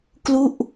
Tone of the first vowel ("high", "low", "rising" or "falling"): falling